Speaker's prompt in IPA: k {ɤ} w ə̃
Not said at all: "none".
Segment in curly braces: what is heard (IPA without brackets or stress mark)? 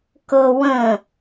ɤ